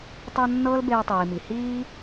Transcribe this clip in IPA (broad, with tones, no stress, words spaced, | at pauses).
tˤɤ˧ nːɤː˥lbeː˧tˤiː˩mi˩ hiː˥